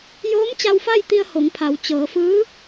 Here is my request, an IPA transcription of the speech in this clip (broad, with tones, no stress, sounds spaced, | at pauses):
j oː˧˥ m t͡ɕ a˧ w f a˥˨ j t̪ i˧ ə̯ h o˩˧ ŋ pʰ a˩˧ w t͡ɕ ɤː˩˧ f ɯː˧˥